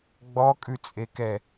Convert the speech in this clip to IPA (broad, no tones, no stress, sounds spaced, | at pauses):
ɡ͡b ɔ kʼ ʉ t͡sʼ e k ɛ